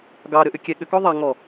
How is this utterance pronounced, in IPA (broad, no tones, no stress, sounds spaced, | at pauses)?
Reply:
ɡ ɑ ɾ ʏ ʔ ʏ kʲ ɛ ɠ ʏ k ɔ ðˤ a ŋ ɔ